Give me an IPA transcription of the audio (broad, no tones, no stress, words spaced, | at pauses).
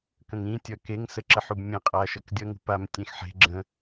kə̃ŋĩ tʲʌkeŋ səǁəħubmʲẽ qʼaʃʌkdʲʌ ŋṳpam tʲẽxħe̤ ɡ͡ǁə̃